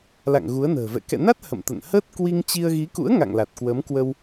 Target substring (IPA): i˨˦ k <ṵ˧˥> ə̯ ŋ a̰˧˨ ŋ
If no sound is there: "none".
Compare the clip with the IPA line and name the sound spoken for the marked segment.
ṵ˧˥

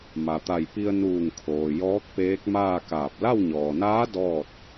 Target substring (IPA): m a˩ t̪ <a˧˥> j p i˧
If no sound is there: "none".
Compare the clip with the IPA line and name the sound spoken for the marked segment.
a˧˩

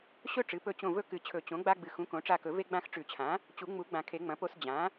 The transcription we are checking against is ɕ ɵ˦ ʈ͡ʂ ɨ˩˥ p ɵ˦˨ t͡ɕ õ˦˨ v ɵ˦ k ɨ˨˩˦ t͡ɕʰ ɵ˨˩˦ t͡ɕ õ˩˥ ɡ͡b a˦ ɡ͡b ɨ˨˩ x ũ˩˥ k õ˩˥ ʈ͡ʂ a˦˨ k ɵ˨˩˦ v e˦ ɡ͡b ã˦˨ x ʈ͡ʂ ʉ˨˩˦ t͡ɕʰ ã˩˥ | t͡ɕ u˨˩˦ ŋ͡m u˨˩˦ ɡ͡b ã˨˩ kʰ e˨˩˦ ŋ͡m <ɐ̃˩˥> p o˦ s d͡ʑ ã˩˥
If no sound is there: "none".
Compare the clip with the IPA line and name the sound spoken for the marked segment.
ɐ̃˩˥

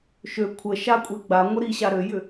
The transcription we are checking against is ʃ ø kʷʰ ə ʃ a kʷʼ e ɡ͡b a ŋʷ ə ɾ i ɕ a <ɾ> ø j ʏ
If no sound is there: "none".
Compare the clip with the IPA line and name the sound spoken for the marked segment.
ɾ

